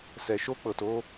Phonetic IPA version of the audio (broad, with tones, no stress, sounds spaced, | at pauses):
s ɛ˨ ʃ o˦ k͡p ɤ˨ t o˦